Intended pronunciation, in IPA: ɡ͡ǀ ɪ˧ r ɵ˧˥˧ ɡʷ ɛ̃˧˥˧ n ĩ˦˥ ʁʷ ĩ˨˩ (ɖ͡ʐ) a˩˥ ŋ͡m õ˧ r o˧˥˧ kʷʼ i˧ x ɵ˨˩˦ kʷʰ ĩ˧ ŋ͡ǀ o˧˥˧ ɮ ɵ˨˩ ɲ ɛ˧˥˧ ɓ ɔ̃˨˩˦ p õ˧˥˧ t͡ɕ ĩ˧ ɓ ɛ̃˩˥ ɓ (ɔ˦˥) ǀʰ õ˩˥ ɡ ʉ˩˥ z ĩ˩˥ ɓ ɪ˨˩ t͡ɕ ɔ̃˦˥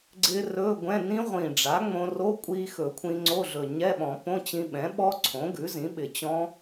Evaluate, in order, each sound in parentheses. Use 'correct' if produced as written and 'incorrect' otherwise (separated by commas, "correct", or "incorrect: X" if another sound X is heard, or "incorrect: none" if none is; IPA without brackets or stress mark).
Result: correct, correct